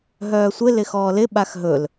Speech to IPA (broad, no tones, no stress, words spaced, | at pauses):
ɦœːsʷɪ lɪxɔːlɪ ɓaxɦɵl